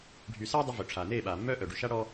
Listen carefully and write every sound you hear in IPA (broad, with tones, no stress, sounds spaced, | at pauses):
ɖʱ y˨ s aː˦ dˤ ø˧ v ø˨ ʈ͡ʂʰ aː˨ n eː˦˨ ɓ aː˨ mː œː˦ ʔ œ˨ ɖ y˨ ʃ a˦ ɽ ɔː˦